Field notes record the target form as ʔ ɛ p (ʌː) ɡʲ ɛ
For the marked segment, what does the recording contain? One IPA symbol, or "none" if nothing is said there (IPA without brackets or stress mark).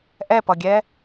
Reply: ʌ